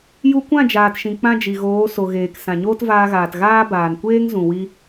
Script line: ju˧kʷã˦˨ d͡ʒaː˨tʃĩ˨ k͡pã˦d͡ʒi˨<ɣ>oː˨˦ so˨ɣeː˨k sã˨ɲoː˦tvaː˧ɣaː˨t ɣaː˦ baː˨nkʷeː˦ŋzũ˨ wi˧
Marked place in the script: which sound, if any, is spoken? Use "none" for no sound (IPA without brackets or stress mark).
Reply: ɣ